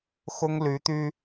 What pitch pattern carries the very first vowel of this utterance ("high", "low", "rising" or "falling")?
high